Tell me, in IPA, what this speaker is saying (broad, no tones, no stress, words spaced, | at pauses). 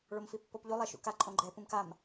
ɭomfipːopʎu lˠeʃṵka ǃʼõɡ͡ǃɛ pũmkam